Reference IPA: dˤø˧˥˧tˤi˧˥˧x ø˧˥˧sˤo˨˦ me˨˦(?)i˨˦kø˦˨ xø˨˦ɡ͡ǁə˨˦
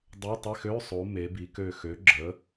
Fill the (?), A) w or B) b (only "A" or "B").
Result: B